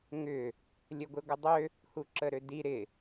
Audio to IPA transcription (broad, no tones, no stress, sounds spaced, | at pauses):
ŋ ʏ | lʲ ə ɡʷ ɪ ɡʷ ɪ dˤ ø | h u ǁ ə ɾ ø d i ɾ ɪ